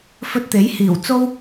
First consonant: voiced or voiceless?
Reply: voiceless